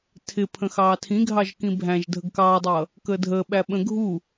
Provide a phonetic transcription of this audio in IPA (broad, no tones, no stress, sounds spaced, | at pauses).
tʰ ɪ pʰ ə̃ x ɑː tʰ ĩ ɡʱ ɑ ʒ k ĩ bʱ æ̃ ʒ dʱ ə ɡ k ɑː dˤ ʌː | k əː dʱ əː ɓ æ ɓ ə̃ ɡʱ u